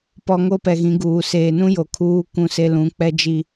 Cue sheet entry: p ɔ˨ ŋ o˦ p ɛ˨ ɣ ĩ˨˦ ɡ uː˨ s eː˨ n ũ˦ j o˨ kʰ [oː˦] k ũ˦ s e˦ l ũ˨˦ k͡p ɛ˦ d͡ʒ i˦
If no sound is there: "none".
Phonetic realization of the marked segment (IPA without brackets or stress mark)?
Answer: uː˦